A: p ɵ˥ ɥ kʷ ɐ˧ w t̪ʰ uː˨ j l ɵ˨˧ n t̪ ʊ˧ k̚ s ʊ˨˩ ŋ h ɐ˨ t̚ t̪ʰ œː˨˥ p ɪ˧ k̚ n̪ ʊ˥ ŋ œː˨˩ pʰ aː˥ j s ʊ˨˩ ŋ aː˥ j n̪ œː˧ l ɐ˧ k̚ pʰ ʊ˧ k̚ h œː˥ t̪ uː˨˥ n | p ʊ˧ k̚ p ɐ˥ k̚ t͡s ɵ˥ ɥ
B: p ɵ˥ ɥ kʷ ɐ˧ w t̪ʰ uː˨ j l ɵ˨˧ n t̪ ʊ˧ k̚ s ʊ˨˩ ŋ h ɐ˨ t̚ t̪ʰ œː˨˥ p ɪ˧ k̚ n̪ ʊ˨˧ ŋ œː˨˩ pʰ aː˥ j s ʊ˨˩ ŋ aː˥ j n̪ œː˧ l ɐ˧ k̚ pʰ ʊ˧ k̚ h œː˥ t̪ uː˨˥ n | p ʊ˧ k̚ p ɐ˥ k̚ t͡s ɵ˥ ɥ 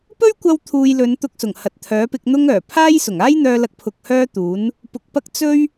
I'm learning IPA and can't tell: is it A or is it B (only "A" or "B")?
A